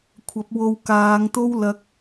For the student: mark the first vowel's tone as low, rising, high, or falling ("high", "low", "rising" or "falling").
rising